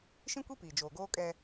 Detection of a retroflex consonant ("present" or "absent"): absent